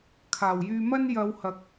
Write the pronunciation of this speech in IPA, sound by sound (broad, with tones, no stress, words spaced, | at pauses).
kʰaː˨˩wjyː˧mɐ˥n jɐ˨˧whɐ˨k̚